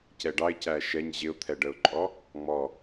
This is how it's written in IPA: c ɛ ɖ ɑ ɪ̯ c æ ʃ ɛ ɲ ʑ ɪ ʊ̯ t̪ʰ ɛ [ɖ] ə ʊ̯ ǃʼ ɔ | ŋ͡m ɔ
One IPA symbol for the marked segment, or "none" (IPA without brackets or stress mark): ɖ